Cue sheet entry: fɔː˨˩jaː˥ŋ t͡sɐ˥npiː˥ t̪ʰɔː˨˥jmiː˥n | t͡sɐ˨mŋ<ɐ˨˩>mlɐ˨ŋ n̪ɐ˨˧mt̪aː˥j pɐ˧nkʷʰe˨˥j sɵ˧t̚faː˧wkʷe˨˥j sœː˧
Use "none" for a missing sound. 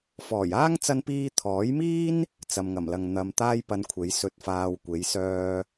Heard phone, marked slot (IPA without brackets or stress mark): ɐ˨˩